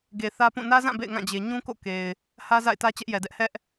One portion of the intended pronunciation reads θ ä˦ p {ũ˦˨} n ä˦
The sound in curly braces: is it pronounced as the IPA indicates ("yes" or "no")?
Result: yes